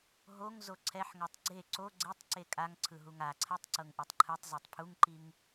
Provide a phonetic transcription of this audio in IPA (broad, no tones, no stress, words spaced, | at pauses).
ɦoŋ zoǀʰɛħŋɤtˤ ɡ͡ǀe ǀo ɡ͡ǀetˤ ǀekʼaŋǀʰɯ ɦuŋaǀʰɛtˤ ǀɤŋʔɯtˤǃʰɯtˤzotˤ pʰuŋǃiŋ